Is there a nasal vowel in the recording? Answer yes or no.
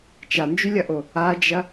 no